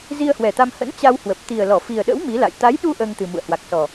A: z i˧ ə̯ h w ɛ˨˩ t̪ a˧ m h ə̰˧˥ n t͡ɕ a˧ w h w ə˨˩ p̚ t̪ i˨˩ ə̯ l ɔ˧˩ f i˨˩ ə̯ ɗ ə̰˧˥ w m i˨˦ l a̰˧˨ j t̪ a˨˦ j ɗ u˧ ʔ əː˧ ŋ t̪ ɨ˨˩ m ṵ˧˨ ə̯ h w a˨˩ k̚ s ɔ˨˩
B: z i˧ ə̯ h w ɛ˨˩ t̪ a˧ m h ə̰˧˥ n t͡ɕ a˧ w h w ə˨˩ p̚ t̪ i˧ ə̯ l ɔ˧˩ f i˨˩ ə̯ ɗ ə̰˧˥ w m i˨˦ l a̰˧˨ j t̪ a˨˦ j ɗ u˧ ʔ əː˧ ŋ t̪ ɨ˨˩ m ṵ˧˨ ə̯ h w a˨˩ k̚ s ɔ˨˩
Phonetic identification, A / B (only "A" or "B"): A